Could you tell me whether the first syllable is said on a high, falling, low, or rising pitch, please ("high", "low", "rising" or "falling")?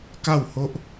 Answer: falling